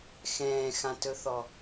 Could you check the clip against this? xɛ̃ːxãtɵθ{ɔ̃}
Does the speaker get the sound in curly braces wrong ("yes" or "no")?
yes